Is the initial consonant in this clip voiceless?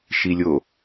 yes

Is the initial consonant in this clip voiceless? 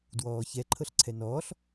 no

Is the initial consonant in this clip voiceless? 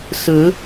yes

